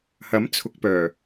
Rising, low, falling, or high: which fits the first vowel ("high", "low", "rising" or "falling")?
rising